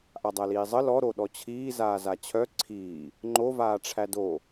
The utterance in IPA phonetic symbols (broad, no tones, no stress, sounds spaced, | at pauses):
ʔ a dˤ æ l iː zˤ ə l ɔ ɾ o ɗ ɔ t͡ɕʰ iː z aː z a t͡ɕʰ œ ǀʰ iː | ŋ͡ǃ o v aː ʈ͡ʂʰ æ d o